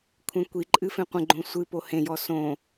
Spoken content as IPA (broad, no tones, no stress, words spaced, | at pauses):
kʷʰẽkʷiǃʼɨ fẽqʷə̃ɡ͡ǃõ sʷɨpo hẽjɔ sõ